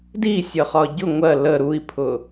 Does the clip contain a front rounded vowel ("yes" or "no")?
no